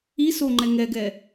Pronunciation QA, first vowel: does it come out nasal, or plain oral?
oral